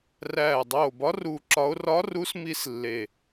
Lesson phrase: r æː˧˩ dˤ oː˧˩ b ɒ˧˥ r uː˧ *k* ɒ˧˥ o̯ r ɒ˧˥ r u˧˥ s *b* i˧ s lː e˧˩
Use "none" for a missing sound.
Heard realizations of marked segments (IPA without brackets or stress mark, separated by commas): ǁ, m